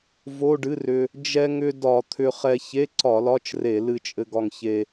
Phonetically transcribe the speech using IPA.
vo˧˥˧ɖɨ˧˥˧rʏ˧ | d͡ʒɛ˧ŋʏ˧ dɒ˧˩˧t̪ʰʏ˧χɛ˧ çe˧˥˧ǀɒ˧˩˧ lɒ˧˥˧t͡ʃre˧˩˧ lɨ˧t͡ʃʼɘ˧ ɡɒ˧ŋçe˧

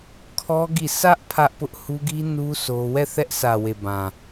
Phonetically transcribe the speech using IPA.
kʰɔ˦ ɡi˦˨ sʰä˦ʔ pʰä˦ʔpʊ˦ʔ hu˦ɡi˦ nu˦ sʰo˦ wɛ˦˨θɛ˦ʔsä˨we˨ bã˨

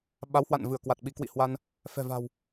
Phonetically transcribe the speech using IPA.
ɓa˨˦whwa̰˧˨n vɨ˧˩ə̯kwa˨˩t̚ ɓi˨˦kwḭ˧˨ hwa˧n | fɛ̤˨˩va̤˨˩w

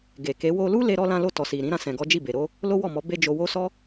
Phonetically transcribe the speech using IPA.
ɡe˨ke˨˦ wo˧lu˦le˧ ɾɔ˦ lã˧lo˧ tɔ˨si˨ ɾĩ˨˦ɾã˧ sɛ̃˨ɡɔ˨˦ d͡ʒi˦˨be˨ɾo˨˦ | lo˦ wɔ˦˨mɔ˨˦ be˧ d͡ʒo˧wo˦ sɔ˦

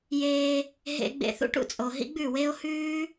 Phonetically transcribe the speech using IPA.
jeː˧ | ɦḛ˧ɡ͡bḛ˧θṵ˦ʈ ṵ˧t͡sʼo˨ ɦḭ˦ɡ͡bʉ˦˨we˦o̯ hʉː˦

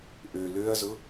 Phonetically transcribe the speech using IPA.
ʔø løɐ̯zʊ

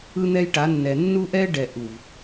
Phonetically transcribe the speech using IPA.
ɯ˦n̪ɛ˦jʈa˨˦nːɛ˨ nːu˦ʔɛ˦ ɖɛ˨ʔu˨v

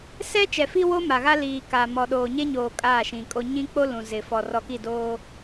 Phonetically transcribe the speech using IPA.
sɛ˦ t͡ʃɛ˨fi˦wo˦ ma˨ɣa˦liː˨kaː˨ mɔ˨ɗoː˨ɲe˦ɲoː˨ kʼaː˦˨ʃĩ˨kʼo˦ ɲĩ˦k͡po˦ lũ˨ zɪ˨fɔ˨ rɔ˨ki˦˨doː˦

